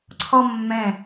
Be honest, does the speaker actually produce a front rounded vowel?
no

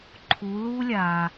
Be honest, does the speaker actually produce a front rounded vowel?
no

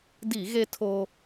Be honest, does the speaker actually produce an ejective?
no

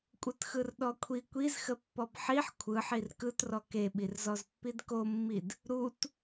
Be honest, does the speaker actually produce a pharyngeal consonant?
yes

